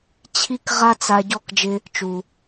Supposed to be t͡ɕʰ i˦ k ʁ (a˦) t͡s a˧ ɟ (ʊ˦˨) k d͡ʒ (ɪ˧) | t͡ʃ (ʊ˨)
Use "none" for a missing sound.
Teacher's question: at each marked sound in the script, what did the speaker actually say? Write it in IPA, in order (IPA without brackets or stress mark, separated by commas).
a˦, ɔ˦˨, ɪ˧, u˨